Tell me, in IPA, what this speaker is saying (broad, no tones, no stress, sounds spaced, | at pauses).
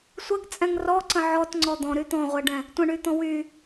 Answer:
sʷ ə ɡ t͡sʼ ɛ̃ ŋ r ɔ ǀ ə̃ ʕ ɔ t ŋ͡ǀ ɔ d̪ ɔ̃ ɾ y t̪ ɔ̃ ʁʷ ɛ ɖ ɛ̃ | tʷ ə̃ ɳ y t̪ ɔ̃ w y